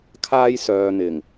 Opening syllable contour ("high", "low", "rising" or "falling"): high